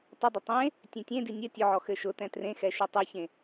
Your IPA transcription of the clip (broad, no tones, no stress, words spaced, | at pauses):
tˤədˤə tˤẽ | tʲẽtʲẽdi nʲɘ tʲʊʕɔ xɘʃʊtɛ̃ trẽxɛ ʃetˤʉçẽ